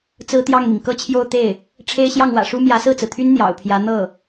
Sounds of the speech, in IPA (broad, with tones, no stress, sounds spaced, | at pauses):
t͡s ɹ̩˥ t̪ j ɑ˥˩ ŋ m i˩ ŋ k ɤ˥˧ t͡ɕʰ j o˥˧ ʊ̯ t̪ e˥˩ ɪ̯ | ʈ͡ʂʰ e˥ ɪ̯ ɕ j ɑ˥˩ ŋ w ä̰˨˩ ʂ u˥ m j ä˧˥ s ɹ̩˥˩ t͡s ɹ̩˩ t̪ʰ y˥ n n̪ j ɑ̰˨˩ ʊ̯ pʰ j ä˧˥ n̪ ɤ˥˩